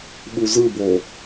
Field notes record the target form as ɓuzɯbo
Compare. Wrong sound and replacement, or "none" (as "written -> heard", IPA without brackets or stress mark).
none